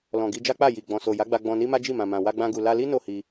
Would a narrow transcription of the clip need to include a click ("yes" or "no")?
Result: no